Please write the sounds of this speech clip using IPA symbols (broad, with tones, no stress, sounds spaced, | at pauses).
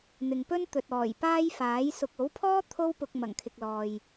n̪ ɪ˨ ŋ p ɵ˥ n t̪ ɵ˨ t̚ ɔː˨˩ j p aː˥ j f aː˨˥ j s ʊ˨ k̚ o˨˥ w pʰ ɔː˥ t̪ʰ o˥ w p ʊ˧ k̚ m ɐ˨˩ ŋ kʰ ɪ˨ k̚ l ɔː˨ j